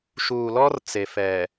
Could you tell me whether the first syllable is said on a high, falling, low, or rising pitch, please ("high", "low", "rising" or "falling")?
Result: low